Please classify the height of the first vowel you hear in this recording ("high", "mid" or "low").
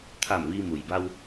low